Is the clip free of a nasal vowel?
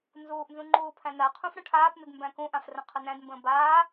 no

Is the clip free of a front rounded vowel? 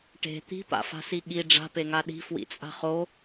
yes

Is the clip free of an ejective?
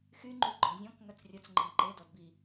yes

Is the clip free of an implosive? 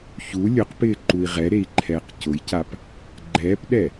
no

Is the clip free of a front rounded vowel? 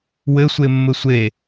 yes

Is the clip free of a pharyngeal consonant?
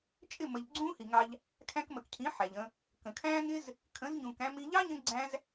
no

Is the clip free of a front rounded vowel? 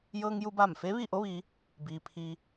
yes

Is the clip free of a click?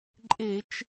no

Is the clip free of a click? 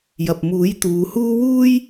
yes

